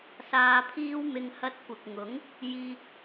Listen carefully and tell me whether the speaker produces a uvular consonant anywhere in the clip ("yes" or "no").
no